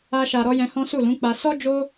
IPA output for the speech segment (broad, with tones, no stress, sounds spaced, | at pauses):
a˧ ʃ a˨ ɾ ɔ˧ j ɛ̃˧ h ɔ̃˦ s u˦˨ l ũ˨˦ k͡p a˧ s ɔ˦ d͡ʒ o˦